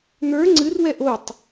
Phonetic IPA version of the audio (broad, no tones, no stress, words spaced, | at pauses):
n̪ə˞ ŋ͡ǀɨrwɛ ʔotˤ